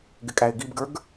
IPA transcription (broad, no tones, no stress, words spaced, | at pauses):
ɡɪkʼæɪ̯ɡibɡə˞ɡ